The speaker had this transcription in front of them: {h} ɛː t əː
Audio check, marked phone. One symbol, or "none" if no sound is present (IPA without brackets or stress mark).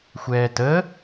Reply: xʷ